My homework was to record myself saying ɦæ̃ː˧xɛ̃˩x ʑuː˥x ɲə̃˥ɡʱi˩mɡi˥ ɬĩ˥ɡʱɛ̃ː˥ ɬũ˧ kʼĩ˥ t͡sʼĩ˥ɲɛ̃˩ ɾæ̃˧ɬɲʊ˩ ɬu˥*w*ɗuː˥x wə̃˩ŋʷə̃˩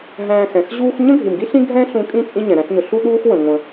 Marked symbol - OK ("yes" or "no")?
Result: no